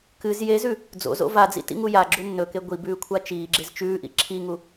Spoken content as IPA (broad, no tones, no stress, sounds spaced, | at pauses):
k ɨ z j e z ʉ | d͡z o̰ z o̰ v a d͡z ḭ t ḭ ŋ u j a ɡ͡ǁ u nː ɵ k e ɡʷ i b ʉː kʷʰ a t͡ʃ iː ɡ͡ǁ e z t͡ʃ ʉː ʔ ḭ ǁʰ i ŋ u